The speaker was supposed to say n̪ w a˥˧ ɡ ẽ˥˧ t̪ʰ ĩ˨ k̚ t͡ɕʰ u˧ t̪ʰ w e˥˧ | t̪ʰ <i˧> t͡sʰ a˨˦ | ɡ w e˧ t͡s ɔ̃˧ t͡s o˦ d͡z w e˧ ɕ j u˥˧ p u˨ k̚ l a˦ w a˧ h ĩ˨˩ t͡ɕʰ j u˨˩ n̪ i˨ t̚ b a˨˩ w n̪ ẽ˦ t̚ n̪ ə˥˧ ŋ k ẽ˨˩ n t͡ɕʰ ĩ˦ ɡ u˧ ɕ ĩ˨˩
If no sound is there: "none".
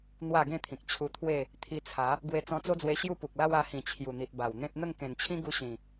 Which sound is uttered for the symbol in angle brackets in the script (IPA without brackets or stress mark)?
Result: i˧